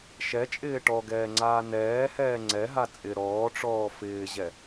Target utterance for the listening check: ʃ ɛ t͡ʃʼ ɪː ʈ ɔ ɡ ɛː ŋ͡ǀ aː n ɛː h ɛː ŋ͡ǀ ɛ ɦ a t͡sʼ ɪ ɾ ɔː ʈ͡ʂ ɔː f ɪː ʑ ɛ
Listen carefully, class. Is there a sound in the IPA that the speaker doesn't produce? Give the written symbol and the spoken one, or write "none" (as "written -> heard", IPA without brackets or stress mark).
none